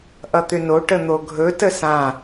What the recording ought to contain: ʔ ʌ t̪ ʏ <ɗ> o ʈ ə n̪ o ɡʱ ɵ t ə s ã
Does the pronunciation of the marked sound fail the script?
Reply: yes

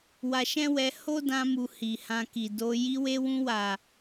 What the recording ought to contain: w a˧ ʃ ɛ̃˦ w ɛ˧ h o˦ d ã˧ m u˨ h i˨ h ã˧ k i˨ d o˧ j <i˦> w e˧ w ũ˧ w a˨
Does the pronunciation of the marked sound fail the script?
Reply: yes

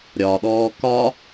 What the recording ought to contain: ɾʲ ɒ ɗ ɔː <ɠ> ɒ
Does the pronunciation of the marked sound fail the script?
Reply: yes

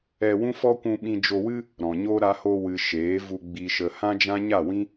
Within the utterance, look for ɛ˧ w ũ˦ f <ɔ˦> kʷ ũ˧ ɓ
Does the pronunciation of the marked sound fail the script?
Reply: no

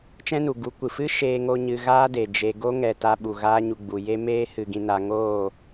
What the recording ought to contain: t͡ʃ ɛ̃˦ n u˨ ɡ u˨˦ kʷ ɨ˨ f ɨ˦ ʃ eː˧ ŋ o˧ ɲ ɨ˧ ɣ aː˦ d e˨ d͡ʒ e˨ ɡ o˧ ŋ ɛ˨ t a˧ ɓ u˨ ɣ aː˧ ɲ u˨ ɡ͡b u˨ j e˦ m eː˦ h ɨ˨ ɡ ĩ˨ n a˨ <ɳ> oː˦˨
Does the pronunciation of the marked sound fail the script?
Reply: yes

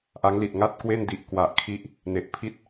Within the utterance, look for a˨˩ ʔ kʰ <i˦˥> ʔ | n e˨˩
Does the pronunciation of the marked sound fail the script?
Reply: no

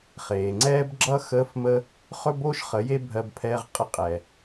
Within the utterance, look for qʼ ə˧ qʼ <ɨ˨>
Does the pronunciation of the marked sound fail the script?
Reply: yes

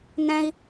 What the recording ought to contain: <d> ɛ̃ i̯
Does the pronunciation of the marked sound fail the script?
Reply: yes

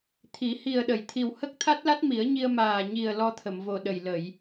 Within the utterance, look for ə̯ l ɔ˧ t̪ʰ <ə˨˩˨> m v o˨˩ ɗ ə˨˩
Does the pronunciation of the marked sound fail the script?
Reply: no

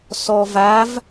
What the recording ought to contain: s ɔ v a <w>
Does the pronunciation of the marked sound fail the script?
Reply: yes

